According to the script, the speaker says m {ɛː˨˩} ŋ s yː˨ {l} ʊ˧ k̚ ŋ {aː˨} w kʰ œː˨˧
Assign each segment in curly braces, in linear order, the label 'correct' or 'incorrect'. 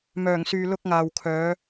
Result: incorrect, correct, correct

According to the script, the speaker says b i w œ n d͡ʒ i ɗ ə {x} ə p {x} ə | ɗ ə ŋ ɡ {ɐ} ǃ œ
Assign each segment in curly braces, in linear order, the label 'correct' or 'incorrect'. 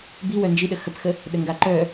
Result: correct, correct, incorrect

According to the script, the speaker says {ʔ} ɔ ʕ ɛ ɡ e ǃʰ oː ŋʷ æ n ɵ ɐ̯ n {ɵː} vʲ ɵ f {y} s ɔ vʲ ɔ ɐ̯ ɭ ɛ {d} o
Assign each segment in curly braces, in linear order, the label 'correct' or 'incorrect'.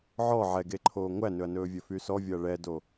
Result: incorrect, correct, correct, correct

